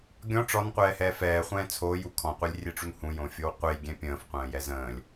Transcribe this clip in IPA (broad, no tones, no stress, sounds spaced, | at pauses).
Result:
ɡʲ ɔ̃ ʈ͡ʂ ɔ n qʷ ɛː h ɛː f ɛː χʷ ɛ̃ː t͡sʰ oː j u kʰ ɔ̃ qʷ ɛ lʲ rʲ e ʈ͡ʂ u n h ũ j õ fʲ o w qʷ e j ɡʲ ɛ̃ pʲ ə̃ː f qʷ ə̃ː j ɛ z ə̃ː lʲ